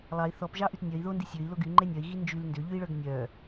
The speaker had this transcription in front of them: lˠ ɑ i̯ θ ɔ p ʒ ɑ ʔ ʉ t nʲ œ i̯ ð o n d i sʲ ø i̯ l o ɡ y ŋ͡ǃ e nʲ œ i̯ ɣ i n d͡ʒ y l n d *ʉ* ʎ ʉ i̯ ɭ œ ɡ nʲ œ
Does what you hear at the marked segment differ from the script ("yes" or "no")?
yes